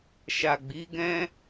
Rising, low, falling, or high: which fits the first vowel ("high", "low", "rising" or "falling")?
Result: low